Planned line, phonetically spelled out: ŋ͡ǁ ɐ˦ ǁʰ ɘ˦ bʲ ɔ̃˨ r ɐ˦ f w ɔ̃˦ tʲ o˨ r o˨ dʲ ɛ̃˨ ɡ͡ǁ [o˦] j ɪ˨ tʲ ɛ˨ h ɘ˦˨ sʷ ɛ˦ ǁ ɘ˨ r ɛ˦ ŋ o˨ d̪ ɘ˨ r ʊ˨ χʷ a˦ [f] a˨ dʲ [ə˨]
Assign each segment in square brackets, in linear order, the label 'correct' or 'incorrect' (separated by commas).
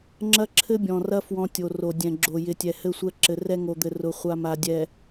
incorrect, incorrect, incorrect